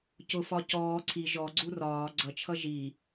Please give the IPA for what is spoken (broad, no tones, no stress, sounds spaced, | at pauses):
c ʊ f ɒ c ɔː ǀʰ i ʒ ɔ ɡ͡ǀ u r ɒː ɡ͡ǀ ʌ t͡ʃʰ ʌ ʒ i